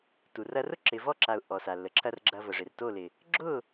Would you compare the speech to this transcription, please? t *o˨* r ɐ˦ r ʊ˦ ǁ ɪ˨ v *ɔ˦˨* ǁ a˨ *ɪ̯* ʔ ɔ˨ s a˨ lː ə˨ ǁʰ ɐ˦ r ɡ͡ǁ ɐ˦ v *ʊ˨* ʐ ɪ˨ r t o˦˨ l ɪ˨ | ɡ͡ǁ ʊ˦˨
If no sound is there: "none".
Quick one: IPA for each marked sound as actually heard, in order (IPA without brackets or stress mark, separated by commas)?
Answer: u˨, ɔ˦˨, ʊ̯, ə˨